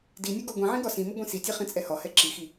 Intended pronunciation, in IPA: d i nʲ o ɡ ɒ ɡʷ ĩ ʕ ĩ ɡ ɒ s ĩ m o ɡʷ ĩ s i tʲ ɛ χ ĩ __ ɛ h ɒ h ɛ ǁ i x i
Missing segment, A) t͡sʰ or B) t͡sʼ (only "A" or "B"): B